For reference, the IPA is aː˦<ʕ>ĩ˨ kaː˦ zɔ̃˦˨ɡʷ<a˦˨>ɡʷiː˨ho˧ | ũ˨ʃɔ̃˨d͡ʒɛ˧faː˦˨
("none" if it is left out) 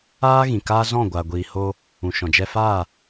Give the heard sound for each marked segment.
ɣ, a˨

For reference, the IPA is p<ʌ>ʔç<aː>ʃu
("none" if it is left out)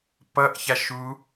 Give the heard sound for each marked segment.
ʌ, a

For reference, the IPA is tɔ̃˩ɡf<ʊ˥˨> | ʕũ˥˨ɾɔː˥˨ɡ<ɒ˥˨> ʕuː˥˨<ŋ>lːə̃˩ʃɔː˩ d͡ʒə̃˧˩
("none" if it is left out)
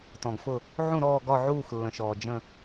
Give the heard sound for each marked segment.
ʊ˧˩, ɒ˥˨, x

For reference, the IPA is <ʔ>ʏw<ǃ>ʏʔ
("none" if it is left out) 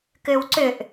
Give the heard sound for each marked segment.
k, ǀ

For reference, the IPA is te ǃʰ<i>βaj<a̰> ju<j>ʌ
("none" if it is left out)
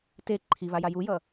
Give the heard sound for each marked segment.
i, a, j

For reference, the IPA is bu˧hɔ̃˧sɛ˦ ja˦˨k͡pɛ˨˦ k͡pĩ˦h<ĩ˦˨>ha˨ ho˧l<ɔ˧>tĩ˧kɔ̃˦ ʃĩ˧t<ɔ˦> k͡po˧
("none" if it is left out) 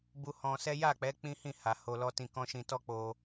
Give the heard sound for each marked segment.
ĩ˦˨, ɔ˦, ɔ˦

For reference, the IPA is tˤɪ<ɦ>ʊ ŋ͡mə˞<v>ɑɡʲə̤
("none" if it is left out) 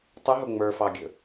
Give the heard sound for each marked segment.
ɦ, f

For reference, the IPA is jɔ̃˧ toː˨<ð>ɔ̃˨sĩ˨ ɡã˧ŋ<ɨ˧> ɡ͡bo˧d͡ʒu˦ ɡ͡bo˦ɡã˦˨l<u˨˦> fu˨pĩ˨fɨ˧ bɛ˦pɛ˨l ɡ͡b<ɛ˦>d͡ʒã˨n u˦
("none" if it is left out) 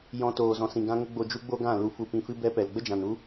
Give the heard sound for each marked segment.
z, ə˧, u˧, ə˦

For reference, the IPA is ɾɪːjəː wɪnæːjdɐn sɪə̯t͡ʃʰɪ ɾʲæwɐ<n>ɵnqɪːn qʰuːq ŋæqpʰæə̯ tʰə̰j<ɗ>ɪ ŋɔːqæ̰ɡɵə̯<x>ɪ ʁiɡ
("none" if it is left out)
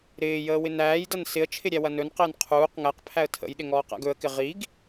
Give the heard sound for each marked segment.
n, ɗ, k

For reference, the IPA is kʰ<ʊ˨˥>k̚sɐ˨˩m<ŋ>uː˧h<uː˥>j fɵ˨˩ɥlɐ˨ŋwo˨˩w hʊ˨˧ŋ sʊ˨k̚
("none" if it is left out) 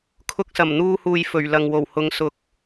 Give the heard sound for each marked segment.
ʊ˧, n̪, uː˨

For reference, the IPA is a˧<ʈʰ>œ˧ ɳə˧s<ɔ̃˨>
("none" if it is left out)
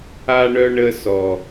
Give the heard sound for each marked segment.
ɳ, ɔ˨

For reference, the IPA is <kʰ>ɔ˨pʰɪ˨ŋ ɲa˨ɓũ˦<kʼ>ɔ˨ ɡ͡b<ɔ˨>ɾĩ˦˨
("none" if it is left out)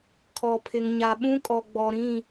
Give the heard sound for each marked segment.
kʰ, kʼ, ɔ˨

